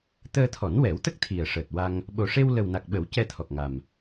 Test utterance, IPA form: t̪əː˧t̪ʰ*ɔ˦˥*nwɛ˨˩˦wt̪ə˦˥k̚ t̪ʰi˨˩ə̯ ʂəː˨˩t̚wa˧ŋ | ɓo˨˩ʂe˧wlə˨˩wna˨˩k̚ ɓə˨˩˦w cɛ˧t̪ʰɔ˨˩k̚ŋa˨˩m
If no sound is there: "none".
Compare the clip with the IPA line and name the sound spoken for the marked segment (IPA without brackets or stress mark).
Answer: ɔ˨˩˦